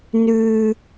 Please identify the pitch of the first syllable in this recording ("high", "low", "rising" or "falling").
low